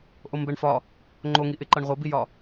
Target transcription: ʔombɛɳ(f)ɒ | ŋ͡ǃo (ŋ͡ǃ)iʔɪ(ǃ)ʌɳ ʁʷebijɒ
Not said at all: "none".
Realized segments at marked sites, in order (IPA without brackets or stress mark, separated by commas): f, ŋ, ǃ